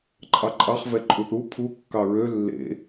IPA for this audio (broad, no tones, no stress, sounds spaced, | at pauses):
ǃʼ ɑ ǃʼ ɑ χ v ɛ ǃʼ u θ u pʰ u kː ɑ ɹ ø lː ḛ